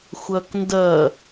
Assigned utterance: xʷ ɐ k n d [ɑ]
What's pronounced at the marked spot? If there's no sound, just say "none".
ɐ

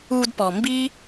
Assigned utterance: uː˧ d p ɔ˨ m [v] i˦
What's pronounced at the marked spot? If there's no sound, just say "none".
b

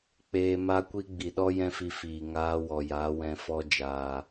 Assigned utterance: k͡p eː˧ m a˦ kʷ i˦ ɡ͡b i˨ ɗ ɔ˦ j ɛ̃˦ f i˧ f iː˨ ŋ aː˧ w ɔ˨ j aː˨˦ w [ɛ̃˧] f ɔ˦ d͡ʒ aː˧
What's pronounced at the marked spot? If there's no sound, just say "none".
ɛ̃˧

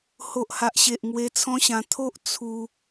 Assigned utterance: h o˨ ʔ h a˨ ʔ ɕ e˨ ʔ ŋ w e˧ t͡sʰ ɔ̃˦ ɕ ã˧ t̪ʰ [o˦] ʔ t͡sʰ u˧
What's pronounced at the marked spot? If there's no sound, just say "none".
o˦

